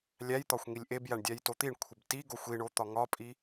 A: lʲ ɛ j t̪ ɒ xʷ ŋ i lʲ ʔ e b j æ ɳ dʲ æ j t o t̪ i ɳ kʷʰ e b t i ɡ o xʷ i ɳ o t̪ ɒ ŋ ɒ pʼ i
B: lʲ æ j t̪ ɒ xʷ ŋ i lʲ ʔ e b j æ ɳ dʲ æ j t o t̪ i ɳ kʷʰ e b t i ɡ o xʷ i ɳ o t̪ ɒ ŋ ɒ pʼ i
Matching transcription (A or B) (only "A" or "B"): B